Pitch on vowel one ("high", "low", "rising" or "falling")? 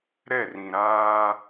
falling